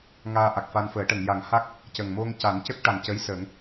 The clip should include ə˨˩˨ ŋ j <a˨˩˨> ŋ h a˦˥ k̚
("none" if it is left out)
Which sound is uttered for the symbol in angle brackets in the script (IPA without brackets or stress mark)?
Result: a˨˩˦